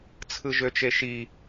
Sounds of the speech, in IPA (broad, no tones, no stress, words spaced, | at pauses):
t͡sʰɯʒøt͡ʃeʃi